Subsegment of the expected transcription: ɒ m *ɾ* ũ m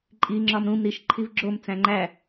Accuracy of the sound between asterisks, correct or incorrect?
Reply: correct